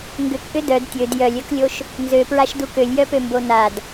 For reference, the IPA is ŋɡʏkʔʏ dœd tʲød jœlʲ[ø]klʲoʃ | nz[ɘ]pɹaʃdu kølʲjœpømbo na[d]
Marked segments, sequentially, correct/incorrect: incorrect, incorrect, correct

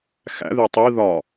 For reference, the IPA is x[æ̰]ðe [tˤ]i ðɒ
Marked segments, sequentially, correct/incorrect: correct, correct

